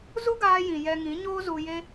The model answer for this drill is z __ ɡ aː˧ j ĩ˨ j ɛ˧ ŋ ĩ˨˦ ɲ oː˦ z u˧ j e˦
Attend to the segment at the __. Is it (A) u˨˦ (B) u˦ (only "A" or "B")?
B